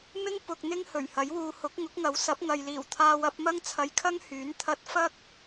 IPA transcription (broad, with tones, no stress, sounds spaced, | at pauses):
m ɪ˥ ŋ p ʊ˧ k̚ n̪ ɪ˥ ŋ h ɵ˨˩ ɥ h ɐ˨˥ j w uː˧ h ʊ˨˥ k̚ ŋ ʊ˨˥ k̚ ŋ ɐ˨˥ w s ɐ˨˥ p̚ ŋ ɐ˨ j l iː˨˩ w t̪ʰ aː˧ w ɐ˨˥ p̚ m ɐ˥ ŋ t͡sʰ ɐ˧ j kʰ ɐ˥ ŋ h yː˨˥ n t̪ʰ ɐ˧ t̚ f ɐ˥ k̚